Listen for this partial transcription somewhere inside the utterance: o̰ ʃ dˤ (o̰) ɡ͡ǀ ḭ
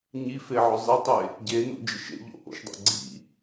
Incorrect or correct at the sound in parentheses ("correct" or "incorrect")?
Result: correct